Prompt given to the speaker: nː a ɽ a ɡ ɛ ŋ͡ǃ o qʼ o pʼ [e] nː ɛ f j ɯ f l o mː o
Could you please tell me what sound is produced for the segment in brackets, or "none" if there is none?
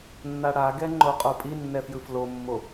i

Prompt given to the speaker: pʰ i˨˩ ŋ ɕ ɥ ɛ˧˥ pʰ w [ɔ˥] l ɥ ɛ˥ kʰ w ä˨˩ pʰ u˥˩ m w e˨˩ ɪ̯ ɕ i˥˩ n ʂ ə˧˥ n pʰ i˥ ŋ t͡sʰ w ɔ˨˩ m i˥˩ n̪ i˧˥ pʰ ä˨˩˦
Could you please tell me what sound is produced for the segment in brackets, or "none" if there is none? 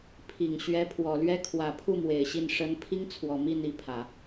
ɔ˨˩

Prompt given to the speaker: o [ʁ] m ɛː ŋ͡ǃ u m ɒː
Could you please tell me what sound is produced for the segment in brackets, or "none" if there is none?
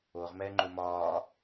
ʁ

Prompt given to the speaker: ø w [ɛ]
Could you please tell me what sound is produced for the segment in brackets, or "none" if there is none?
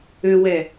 ɛ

